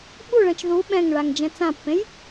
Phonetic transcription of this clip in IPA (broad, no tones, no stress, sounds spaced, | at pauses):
ɓ u ɭ ɛ̃ t͡ʃ ð u ɓ ɛ̃ ŋ ɭ a ŋ d͡ʒ ɛ̃ t͡s ã pː ẽ j